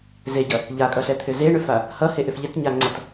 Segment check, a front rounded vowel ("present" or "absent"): present